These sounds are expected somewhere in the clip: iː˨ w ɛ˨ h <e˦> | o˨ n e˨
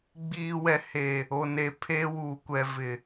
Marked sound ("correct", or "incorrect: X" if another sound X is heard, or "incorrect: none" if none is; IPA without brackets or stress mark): incorrect: e˨